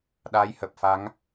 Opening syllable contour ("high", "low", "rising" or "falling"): rising